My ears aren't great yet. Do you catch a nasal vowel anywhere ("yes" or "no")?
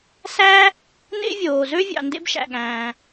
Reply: yes